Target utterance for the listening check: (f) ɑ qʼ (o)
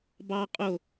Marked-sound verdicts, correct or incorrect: incorrect: b, correct

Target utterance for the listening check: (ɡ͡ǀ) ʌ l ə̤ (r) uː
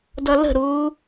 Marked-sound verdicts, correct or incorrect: incorrect: d, incorrect: ɾ

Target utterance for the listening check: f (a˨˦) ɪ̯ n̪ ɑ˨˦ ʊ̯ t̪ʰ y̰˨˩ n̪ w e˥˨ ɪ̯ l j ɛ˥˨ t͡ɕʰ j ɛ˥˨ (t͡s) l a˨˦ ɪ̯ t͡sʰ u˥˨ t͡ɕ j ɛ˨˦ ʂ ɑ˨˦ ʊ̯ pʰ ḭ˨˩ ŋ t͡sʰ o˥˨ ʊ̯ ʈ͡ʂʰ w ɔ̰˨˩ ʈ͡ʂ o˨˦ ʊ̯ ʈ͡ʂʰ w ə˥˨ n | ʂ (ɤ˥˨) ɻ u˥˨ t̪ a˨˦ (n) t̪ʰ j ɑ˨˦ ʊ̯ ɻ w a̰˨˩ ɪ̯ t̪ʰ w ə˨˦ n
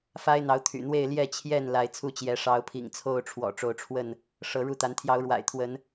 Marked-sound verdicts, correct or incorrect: incorrect: a˦, incorrect: n, incorrect: ɤ˨˦, correct

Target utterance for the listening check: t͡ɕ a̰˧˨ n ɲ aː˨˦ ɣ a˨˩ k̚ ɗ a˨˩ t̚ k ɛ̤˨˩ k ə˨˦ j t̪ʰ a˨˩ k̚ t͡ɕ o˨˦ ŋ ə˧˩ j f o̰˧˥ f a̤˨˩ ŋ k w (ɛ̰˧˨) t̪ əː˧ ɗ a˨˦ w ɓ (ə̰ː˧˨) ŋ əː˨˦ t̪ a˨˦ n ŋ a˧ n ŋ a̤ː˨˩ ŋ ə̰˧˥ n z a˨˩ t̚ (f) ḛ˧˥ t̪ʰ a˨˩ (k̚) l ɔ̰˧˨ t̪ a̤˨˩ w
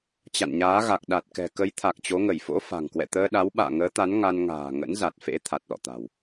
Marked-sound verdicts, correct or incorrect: correct, incorrect: a̰ː˧˨, correct, incorrect: t̚

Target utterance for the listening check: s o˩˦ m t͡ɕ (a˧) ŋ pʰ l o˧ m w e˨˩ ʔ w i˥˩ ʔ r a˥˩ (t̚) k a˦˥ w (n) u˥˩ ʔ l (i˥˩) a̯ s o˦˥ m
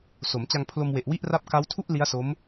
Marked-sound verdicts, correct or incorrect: correct, incorrect: p̚, incorrect: tʰ, incorrect: i˦˥

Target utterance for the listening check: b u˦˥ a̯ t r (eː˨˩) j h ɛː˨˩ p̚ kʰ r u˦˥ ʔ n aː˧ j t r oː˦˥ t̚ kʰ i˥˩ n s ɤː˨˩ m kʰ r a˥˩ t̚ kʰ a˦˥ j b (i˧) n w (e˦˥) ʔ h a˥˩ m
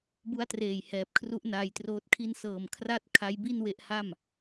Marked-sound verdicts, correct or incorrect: correct, incorrect: i˥˩, correct

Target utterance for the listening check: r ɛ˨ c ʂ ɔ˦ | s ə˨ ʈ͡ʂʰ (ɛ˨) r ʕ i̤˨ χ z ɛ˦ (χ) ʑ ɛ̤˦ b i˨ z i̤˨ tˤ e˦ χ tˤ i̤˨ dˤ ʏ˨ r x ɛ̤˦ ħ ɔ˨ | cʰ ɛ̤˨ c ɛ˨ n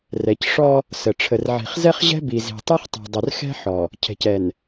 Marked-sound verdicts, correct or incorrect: incorrect: ə˨, correct

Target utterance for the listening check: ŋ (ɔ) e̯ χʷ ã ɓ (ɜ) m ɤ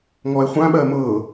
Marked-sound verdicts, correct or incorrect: correct, correct

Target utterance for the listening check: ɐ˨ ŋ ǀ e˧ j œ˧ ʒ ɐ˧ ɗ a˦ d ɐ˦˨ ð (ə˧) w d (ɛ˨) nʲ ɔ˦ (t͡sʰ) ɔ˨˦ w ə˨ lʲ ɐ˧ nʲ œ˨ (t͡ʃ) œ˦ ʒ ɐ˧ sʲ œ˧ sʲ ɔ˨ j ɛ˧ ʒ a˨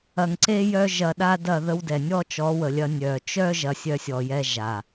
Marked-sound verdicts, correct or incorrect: correct, correct, incorrect: t͡ʃ, correct

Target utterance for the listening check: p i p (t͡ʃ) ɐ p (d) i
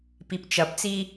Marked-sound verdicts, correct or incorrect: correct, incorrect: t͡s

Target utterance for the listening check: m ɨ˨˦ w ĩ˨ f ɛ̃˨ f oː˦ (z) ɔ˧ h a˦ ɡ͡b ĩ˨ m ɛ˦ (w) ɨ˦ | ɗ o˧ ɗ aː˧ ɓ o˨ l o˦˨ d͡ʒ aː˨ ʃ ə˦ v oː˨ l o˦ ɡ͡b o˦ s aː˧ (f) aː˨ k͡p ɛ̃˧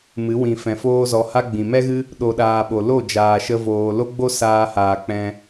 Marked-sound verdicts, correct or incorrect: correct, incorrect: ɣ, incorrect: h

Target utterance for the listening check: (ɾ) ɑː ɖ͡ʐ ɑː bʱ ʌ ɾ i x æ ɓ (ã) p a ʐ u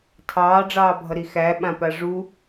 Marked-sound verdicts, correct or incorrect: incorrect: tʰ, correct

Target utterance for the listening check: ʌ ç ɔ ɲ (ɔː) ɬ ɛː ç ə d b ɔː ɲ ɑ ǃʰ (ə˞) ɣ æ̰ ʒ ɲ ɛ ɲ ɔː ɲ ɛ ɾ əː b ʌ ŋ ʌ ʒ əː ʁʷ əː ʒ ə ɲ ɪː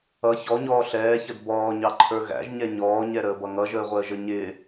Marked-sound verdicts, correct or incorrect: correct, correct

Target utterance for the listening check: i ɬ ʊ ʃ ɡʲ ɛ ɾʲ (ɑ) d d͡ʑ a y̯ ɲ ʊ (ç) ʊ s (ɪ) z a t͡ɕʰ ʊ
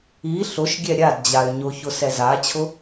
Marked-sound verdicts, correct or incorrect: incorrect: a, correct, incorrect: ɛ

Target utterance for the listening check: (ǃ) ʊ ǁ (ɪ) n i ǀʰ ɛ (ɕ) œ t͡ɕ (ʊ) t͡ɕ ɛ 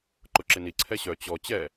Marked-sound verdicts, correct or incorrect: correct, correct, correct, incorrect: ɔ

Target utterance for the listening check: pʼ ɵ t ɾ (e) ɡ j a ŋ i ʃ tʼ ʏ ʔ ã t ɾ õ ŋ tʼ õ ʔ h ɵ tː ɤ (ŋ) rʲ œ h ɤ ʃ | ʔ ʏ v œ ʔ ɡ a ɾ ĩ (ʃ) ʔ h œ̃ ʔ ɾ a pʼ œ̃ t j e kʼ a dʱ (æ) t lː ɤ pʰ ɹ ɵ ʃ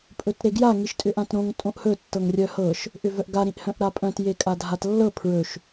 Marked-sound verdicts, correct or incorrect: correct, correct, incorrect: none, incorrect: a

